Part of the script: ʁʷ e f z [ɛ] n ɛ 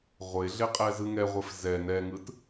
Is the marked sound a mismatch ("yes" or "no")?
no